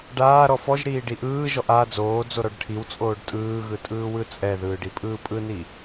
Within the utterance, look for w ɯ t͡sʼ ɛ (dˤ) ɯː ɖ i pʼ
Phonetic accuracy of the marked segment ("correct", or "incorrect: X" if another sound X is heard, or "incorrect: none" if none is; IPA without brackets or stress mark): incorrect: ð